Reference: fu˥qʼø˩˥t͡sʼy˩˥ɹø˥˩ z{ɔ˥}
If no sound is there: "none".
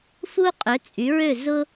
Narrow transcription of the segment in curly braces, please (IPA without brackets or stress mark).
ʊ˥